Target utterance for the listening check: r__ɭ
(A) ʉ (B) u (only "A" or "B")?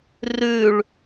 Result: A